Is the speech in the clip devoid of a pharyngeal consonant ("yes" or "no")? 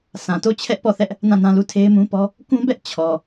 yes